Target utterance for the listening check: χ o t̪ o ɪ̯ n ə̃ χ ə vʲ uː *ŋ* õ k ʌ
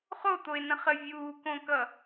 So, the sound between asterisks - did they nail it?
no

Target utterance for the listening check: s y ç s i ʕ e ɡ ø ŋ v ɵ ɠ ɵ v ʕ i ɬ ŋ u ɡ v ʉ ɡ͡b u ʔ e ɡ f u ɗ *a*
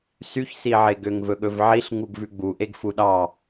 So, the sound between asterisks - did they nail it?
no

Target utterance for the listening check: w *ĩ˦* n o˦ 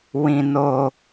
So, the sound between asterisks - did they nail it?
yes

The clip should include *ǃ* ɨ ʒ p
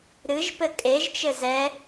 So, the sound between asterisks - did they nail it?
no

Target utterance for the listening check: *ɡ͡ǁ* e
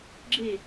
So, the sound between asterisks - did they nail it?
yes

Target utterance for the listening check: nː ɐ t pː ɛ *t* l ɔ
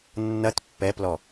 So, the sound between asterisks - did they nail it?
no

